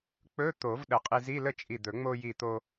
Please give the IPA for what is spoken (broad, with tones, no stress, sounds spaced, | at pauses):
k͡p ɵ˧˥˧ t̪ o˨˩˦ v ɗ ə˨˩˦ qʼ i˧ z i˧˥˧ l ə˥˨ t͡ʃʼ i˧˩ d̪ ɵ˨˩˦ ŋ͡m o˧ j i˧˩ t̪ o˧